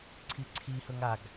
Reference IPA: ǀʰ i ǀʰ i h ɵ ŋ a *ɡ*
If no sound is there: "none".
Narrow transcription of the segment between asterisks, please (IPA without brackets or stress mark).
ɡ